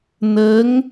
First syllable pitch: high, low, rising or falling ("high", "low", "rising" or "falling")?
rising